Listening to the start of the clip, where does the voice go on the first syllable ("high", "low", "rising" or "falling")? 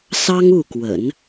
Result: high